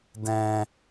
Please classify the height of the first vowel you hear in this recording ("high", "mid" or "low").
mid